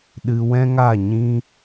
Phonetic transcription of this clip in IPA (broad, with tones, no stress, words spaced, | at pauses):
ɗɨ˧wɛ̃˦ŋa˦˨ɲĩ˦